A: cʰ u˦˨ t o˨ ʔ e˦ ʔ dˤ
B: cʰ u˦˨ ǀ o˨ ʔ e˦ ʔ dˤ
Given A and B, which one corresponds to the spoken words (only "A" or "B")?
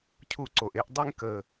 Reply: B